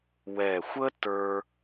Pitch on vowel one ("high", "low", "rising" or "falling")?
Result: low